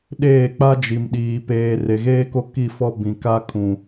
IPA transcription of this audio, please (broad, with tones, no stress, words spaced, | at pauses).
ɗeː˦˨k͡pa˦d͡ʒi˨mɗiː˨ peː˨ re˨ɣeː˦ko˦ ki˦˨fɔ˦ bĩ˨ka˦kʰũ˨